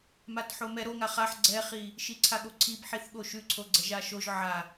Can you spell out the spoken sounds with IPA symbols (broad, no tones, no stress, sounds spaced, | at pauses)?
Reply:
m a t ħ o m ɛ ɾ o ŋ a χ a ħ ɡ͡ǀ ɛ χ i | ʃ i ǀʰ a ɠ o ǀʰ i b ħ i θ ɠ o ʃ ʉ ǀʰ o ɡ͡ǀ ɛ ʒ a ʃ o ʒ ʕ a